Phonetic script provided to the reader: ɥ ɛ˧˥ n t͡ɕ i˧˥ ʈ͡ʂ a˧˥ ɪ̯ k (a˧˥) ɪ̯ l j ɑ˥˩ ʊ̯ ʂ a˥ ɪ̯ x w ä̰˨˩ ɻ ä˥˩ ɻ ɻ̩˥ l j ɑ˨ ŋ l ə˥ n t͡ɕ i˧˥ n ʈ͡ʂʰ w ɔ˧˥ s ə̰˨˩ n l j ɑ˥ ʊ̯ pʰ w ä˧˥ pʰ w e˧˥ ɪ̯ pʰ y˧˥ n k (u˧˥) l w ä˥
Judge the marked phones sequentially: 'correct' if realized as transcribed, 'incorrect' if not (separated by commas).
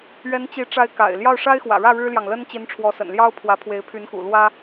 incorrect, incorrect